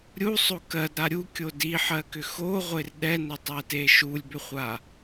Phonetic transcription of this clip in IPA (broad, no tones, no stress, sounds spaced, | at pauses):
ɾʲ u sˤ o k ɜ d ɾ a ɾʲ u kʲ o d i ħ ɜ k ʏ x o ʁʷ e r ɗ ɛ n ʏ tˤ ɛ t e ʃ u lʲ b ʏ χʷ a